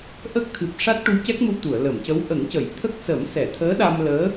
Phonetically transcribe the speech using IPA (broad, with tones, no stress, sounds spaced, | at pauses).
ʔ ə˦˥ k̚ t̪ʰ ɨ˨˩ p̚ ʂ a˦˥ t̚ ʈ u˧˥ c ɛ˦˥ k̚ m u˧ t̪ u˨˩˨ ə̯ l ə˨˩˨ m c ə˧˥ w ʔ ə˨˩˦ ŋ c ə˨˩˨ j t̪ʰ ə˦˥ k̚ s ə˨˩˦ m s ɛ˨˩˨ t̪ʰ əː˧˥ ɗ a˧ m l əː˧˥